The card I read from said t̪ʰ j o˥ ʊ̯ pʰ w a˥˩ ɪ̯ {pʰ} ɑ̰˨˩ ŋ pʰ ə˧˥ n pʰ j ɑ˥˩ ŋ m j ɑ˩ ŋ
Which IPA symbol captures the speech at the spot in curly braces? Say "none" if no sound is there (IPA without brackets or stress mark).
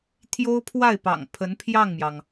p